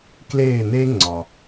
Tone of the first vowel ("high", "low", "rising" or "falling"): falling